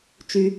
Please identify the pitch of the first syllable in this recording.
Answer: low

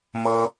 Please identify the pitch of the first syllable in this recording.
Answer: high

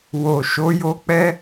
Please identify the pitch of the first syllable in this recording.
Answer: low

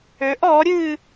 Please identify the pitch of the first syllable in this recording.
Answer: rising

